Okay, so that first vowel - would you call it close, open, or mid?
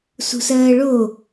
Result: close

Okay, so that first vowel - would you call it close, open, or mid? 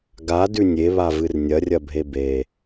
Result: open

